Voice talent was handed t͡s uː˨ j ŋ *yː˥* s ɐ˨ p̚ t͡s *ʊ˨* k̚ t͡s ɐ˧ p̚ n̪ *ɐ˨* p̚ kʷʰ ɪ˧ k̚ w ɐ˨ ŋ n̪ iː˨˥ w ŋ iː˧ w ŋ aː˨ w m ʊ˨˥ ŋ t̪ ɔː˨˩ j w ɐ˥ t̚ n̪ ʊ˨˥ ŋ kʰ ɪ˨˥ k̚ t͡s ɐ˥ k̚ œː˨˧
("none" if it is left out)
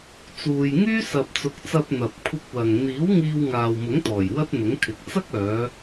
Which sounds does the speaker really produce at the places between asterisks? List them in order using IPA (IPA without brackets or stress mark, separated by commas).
yː˥, ʊ˨˥, ɐ˨